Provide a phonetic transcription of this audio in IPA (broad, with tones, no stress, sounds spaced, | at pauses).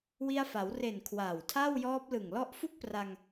w i˧ a̯ f a˩˦ w r e˨˩ n kʰ w aː˨˩ w tʰ a˥˩ w j ɔː˦˥ p̚ l ɯ˨˩ ŋ l ɔ˦˥ ʔ f u˥˩ k̚ p r a˧ ŋ